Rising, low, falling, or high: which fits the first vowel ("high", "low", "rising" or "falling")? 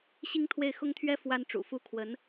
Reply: high